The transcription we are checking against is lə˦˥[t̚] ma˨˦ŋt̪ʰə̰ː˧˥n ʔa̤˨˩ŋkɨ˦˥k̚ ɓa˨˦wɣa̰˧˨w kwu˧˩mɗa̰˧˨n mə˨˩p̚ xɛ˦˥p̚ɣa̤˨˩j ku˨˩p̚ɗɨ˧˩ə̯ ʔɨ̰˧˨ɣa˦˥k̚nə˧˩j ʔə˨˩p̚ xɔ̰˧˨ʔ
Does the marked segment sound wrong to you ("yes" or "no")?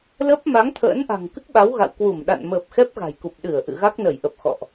yes